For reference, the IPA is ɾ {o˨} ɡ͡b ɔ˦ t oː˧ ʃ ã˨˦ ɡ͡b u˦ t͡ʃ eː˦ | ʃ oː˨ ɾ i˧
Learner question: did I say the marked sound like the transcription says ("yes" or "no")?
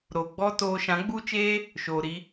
yes